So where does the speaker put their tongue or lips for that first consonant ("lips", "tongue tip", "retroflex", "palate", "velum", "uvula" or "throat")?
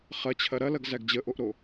uvula